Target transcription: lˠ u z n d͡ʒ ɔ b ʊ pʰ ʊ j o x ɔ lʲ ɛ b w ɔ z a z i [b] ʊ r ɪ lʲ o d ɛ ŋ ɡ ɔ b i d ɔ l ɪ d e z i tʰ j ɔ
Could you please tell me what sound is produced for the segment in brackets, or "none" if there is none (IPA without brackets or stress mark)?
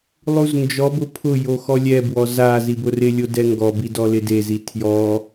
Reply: b